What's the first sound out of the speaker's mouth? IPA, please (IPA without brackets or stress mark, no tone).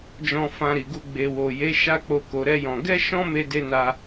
d͡ʒ